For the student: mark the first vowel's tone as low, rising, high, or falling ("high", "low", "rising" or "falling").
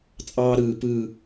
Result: high